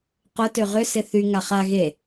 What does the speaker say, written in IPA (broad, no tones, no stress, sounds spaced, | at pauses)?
q ʊ t ø ʁ ʏ s ɪ θ y ŋ a χ a ɣ e